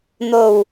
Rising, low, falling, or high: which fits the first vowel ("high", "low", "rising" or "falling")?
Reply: low